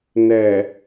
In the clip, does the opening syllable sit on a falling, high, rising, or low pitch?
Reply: low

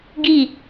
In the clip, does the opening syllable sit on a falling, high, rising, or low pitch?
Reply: falling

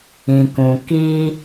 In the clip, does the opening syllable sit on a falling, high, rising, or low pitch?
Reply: low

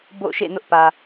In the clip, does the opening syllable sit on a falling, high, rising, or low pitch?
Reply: falling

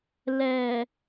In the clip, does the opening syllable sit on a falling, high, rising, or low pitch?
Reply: low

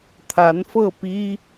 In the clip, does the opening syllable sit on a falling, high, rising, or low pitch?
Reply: rising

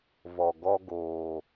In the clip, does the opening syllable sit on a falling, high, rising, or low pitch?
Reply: low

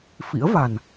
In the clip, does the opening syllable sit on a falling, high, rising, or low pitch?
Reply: rising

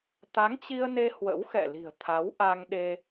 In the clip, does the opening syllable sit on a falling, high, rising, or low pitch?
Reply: rising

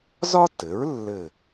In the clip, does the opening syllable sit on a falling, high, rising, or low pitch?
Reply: high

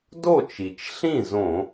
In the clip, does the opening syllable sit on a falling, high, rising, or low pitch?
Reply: falling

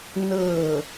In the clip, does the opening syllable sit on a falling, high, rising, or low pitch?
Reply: falling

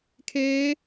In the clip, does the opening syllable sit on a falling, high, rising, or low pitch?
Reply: rising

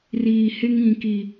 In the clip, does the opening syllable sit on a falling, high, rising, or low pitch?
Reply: low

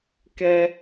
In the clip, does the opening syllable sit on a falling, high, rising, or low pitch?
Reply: high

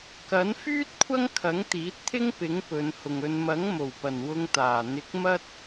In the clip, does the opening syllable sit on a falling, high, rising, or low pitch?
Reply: rising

